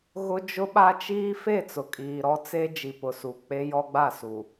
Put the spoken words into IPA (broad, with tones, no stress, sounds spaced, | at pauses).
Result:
ɣ ʊ˦ d͡ʒ ʊ˦ ɓ a˦ t͡ʃ iː˦ f e˦˨ t͡s ʊ˨ kʼ iː˨ ɾ ɔ˦ t͡s e˦ d͡ʒ i˨ p ʊ˨ s u˨ k͡p e˦ j ɔ˦ ɡ͡b a˦˨ s u˨